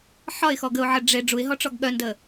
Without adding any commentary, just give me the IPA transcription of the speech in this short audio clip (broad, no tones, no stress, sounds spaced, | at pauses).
ħ ɒ ɪ̯ x ɔ ɡ ə ʊ̯ ʕ ə ɖ͡ʐ e ɖ͡ʐ u ɪ̯ ɦ ɔ ʈ͡ʂ ɔ ɡ ɠ œ n d ə